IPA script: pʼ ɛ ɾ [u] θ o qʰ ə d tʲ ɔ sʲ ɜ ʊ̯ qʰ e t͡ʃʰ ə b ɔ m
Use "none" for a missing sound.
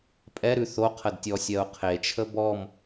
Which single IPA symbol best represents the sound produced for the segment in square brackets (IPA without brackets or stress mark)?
ʉ